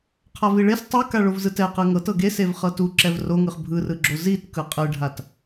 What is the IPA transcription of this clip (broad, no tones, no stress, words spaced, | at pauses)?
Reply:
qʰaviɭes tˤɯ kaɭovzɯtɛ qɯŋɤtɤ ɡesev χɤtu ǁɛvroŋɯχ bʱɯrɯɡ͡ǁo zit kɯqʼɯɖʱat